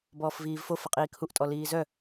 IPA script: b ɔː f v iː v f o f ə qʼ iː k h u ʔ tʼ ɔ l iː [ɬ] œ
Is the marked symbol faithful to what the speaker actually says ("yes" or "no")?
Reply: no